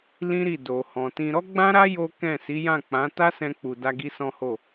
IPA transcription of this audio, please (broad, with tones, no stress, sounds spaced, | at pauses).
l ĩ˦ ɾ i˦˨ d o˨ h ɔ̃˨ t ĩ˧ ɾ ɔ˦ ɡ͡b ã˦ ɾ a˦ j o˦ k ɛ̃˦˨ s i˨˦ j ã˦˨ k͡p ã˨˦ t a˦ s ɛ̃˧ k͡p u˨ d a˧ ɡ i˧ s ɔ̃˦ h o˦˨